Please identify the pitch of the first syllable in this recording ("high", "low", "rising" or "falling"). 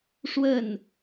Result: falling